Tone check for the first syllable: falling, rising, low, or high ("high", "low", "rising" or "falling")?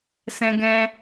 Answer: high